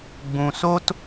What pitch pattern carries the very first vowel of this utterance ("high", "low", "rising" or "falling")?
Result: low